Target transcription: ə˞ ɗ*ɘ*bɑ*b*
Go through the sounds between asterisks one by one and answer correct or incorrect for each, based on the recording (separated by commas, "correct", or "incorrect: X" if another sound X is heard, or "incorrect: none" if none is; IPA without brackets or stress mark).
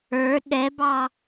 incorrect: ɛ, incorrect: none